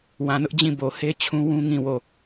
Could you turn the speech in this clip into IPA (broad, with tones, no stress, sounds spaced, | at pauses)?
w ã˨ n ʊ˦ ʔ d͡ʑ ĩ˦˨ b o˨ h e˦ t͡ɕʰ ũ˦ w ũ˦ ŋ ĩ˦˨ w o˦˨